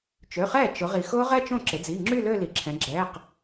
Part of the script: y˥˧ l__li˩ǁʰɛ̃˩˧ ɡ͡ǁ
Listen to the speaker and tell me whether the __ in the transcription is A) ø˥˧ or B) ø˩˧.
A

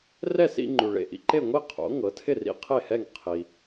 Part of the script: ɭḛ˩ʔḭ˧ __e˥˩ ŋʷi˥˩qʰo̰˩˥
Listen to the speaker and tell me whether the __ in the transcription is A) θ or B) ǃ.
B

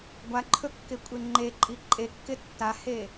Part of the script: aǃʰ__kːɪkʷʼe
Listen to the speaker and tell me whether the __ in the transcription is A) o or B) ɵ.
B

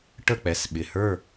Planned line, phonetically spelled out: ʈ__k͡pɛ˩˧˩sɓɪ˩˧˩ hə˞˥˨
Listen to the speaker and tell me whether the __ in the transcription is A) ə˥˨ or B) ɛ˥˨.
A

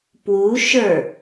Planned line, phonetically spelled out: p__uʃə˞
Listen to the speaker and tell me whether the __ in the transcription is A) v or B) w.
B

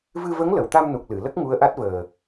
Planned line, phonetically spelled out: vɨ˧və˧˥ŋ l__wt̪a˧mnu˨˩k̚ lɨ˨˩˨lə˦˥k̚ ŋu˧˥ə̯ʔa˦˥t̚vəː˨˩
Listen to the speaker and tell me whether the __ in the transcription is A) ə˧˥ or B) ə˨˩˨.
B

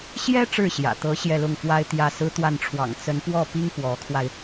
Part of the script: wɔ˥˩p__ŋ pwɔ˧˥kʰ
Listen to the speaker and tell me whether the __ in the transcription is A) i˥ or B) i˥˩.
A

